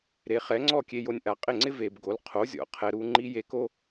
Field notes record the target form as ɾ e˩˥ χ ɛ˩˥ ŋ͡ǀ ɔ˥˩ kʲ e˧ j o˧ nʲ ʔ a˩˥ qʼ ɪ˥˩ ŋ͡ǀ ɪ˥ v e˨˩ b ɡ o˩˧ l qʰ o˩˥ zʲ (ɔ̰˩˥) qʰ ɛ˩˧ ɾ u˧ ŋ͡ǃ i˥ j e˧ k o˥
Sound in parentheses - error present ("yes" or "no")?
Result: no